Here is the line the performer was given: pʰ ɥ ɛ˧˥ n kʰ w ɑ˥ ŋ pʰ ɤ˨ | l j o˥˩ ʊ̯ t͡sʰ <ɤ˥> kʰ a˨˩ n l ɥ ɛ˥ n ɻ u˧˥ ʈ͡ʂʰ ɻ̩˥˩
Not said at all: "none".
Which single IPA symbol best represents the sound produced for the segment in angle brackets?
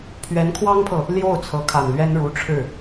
ɤ˧˥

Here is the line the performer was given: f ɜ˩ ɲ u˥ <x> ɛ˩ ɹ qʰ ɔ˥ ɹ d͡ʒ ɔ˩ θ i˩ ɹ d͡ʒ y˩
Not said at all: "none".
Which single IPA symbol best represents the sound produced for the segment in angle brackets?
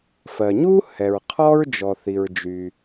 h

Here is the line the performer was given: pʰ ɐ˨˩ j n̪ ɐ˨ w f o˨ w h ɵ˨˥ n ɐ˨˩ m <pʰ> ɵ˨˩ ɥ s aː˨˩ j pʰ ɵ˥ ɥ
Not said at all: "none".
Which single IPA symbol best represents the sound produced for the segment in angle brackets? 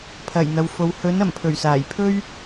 pʰ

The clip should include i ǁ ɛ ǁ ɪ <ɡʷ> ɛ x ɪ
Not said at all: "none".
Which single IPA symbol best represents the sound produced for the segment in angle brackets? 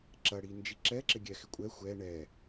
ɡʲ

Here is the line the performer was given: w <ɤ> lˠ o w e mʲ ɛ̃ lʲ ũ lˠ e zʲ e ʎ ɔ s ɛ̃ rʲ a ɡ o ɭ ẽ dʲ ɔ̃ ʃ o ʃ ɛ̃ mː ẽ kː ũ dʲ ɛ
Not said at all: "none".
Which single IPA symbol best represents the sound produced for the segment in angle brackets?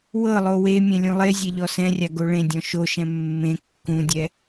ɤ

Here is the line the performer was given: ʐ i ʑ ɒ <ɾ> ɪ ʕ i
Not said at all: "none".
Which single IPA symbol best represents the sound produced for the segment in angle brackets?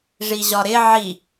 ɾ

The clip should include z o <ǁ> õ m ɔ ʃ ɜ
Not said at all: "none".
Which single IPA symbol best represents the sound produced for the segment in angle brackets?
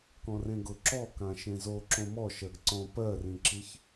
ǁ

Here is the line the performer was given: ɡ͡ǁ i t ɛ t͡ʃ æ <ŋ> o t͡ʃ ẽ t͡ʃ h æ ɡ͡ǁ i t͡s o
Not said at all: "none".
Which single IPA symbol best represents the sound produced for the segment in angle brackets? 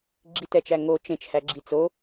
ŋ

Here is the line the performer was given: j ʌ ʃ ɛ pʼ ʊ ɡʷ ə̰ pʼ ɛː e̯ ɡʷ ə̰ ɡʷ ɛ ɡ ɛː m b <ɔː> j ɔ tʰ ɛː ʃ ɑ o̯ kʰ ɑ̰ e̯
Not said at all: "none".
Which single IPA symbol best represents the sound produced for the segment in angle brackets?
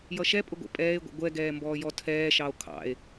ɔː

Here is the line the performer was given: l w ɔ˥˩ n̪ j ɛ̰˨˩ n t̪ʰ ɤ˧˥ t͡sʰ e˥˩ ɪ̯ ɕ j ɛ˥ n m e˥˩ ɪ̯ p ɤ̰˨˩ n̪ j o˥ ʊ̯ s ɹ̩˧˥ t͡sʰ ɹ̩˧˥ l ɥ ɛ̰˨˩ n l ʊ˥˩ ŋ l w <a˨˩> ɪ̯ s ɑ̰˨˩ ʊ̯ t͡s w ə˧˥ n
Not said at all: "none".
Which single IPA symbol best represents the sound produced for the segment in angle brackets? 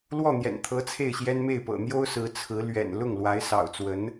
a˧˥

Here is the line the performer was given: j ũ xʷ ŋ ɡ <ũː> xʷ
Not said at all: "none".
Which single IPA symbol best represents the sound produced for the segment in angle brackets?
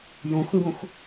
ũ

